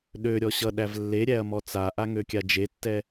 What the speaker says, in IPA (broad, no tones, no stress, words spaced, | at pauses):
ɗøɾʲɔ ɕʌɗæv lːeɾʲæɐ̯mɔ t͡saʔaŋøkʲa d͡ʒetːɛ